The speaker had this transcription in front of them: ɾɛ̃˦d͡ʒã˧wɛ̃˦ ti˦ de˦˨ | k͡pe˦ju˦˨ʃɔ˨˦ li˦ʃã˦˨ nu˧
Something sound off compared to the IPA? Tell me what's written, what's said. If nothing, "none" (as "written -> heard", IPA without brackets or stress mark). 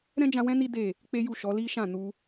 t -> n